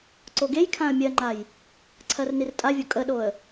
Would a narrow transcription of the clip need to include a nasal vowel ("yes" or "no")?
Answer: yes